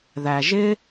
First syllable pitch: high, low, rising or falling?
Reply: low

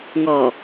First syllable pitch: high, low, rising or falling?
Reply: low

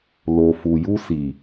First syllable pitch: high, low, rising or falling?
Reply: low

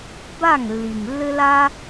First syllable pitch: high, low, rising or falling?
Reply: falling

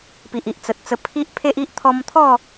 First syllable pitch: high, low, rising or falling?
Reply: low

